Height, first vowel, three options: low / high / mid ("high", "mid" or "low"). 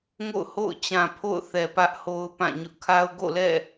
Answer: mid